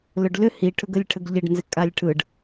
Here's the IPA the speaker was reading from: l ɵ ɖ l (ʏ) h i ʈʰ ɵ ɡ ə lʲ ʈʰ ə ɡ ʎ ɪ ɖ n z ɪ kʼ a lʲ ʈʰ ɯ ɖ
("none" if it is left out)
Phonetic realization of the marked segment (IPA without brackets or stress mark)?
ʏ